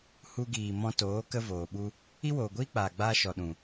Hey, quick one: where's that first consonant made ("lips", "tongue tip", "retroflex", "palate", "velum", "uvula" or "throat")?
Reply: throat